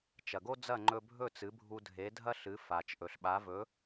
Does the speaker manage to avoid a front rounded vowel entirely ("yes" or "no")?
yes